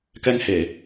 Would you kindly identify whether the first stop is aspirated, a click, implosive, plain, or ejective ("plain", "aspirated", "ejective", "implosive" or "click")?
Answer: plain